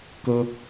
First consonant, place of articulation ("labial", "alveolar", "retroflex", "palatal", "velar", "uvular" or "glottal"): velar